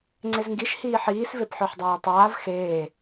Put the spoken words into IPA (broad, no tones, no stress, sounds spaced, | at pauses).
ŋ͡ǀ e z ŋ ɡ i ʃ h iː ħ iː s v e p ħ œ ħ dˤ aː tˤ aː v x eː